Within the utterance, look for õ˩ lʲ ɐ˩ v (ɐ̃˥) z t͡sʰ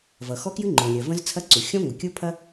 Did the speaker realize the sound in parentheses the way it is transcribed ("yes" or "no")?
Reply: no